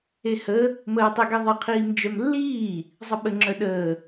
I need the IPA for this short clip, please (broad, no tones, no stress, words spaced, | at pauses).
ehə | məːtˤiɡiðˤʌ qʰiːmd͡ʒœmlːiː | zˤəɓə ŋ͡ǁœɗəː